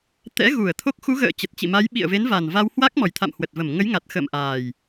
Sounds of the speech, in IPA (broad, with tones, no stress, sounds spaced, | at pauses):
t̪ ɛ̰˧˥ ɣ u˧˩ ə̯ t̪ʰ o˦˥ k̚ x u˨˦ ɣ ə̰ː˧˨ t͡ɕ ə˨˩ t̚ t͡ɕ ḭ˧˨ m a˨˦ j ɓ ḭ˧˨ ə̯ v e˨˦ n v a˨˩ n v a˧ w h w a˦˥ k̚ m ɔ˨˩ j t̪ʰ a̰˧˨ m h w ə˨˩ t̚ v ə˧˩ m ŋ ə˨˦ j ŋ a˨˩ t̚ x ə̰ː˧˨ m ʔ aː˨˩ j